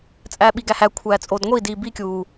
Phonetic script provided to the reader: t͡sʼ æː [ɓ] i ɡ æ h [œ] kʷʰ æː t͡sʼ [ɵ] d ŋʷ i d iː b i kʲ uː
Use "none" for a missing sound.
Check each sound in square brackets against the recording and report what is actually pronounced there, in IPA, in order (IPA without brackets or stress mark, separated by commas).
ɓ, æ, o